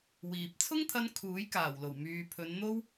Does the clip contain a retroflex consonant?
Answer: no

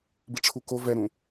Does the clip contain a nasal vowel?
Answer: yes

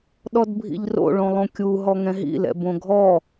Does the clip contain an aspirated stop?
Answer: no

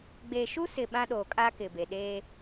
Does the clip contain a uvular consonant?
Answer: no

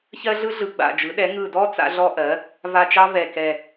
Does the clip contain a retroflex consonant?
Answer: no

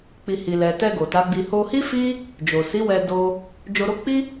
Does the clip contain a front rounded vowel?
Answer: no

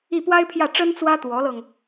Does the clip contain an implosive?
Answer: no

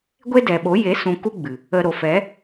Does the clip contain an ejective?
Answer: no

